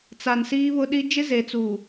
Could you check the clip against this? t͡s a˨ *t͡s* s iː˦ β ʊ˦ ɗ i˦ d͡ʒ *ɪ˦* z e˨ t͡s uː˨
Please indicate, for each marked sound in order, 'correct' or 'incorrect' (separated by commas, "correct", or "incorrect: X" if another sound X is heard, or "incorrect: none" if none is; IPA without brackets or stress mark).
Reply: incorrect: n, correct